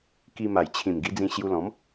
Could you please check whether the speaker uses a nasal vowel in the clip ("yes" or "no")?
yes